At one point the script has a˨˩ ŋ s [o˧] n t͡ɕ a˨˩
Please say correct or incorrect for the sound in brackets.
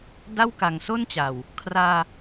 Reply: incorrect